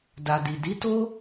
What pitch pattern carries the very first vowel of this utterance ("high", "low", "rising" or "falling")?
low